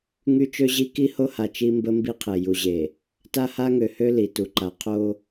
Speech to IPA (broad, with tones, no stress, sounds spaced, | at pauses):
ŋ y˦ t͡ʃ ø˦ ʑ i˦ k i˦ h o˦ h a˨ t͡ʃ i˦ m b ə˦ m b i˦ qʰ e˨ j u˨ ʑ e˨ | t a˦ h a˦ ŋ ø˨ h ø˦ l i˨ t u˨ ǃ a˨ qʰ o˦